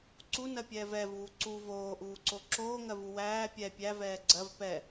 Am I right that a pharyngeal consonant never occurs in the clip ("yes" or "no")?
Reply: yes